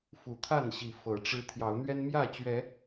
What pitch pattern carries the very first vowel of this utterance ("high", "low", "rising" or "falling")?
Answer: rising